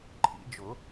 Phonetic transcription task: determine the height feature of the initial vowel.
high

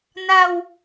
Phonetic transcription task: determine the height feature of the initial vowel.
low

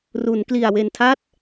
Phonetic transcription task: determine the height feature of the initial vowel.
high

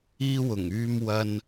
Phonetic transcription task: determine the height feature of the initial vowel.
high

